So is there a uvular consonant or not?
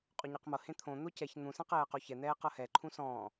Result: yes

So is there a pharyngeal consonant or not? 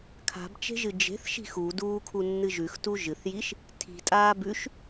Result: no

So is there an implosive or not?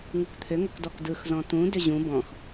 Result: no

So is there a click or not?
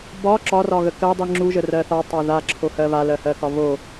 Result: yes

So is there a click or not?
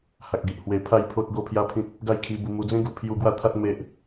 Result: no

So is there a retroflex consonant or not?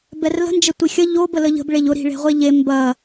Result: yes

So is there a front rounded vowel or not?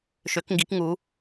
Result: yes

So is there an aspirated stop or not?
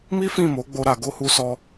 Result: no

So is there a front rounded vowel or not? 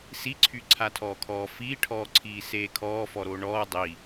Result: yes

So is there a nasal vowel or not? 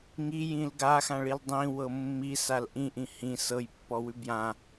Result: yes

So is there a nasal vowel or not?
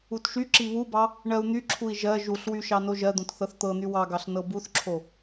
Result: yes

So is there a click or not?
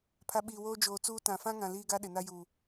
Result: no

